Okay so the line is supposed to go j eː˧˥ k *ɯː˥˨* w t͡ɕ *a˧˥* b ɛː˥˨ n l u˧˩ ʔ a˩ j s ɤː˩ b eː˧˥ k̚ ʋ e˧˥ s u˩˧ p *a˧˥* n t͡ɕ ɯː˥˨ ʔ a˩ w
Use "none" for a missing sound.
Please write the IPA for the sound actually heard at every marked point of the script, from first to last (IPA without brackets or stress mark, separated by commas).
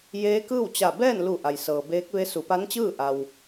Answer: ɯː˥˨, a˧˩, a˧˥